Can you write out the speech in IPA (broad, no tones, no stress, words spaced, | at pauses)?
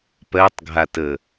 pɜtˤɡʱatə